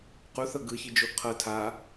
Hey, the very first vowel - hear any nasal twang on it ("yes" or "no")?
no